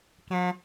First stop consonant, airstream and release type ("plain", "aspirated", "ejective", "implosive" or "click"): plain